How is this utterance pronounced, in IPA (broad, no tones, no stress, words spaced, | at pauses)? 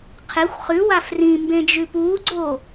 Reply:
qʰexʷ χʉwa frĩmbẽd͡ʒʉ puːɡ͡ǀoː